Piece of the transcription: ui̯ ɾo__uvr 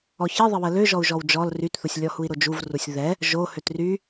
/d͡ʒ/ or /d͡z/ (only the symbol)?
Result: d͡ʒ